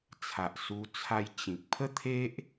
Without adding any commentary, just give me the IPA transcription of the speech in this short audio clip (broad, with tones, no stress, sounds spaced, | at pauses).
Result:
t͡sʰ a˨ ʔ s u˧ t͡sʰ a˧ j t͡ɕ ĩ˨ k̚ pʰ ə˦ t̪ʰ e˦ ʔ